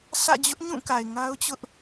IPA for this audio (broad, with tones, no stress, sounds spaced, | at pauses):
sʰ ä̰˦˨ d͡ʑ ʊ˦ ʔ ɲ ũ˦˨ k a˨ ɪ̯ ŋ a˦ ʊ̯ t͡ɕ ʊ˦ ʔ